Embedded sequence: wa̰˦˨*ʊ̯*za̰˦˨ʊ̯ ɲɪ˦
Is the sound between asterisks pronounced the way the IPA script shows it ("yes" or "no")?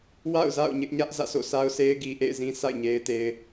yes